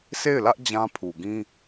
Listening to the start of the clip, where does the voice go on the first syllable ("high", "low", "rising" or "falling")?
falling